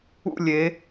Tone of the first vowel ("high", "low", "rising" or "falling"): falling